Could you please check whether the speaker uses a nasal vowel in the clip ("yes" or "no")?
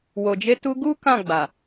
yes